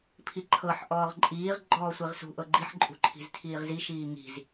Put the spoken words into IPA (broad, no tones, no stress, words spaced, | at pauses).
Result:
pʰiǃʰɤħ ʔɔːʁǃʼiːʁ ɡ͡ǃɔːsʷiʁsṳ ʔɤɡ͡ǃiħ ǃʼṳǃʰi̤ztʰiːʁzi ʃiːŋi̤z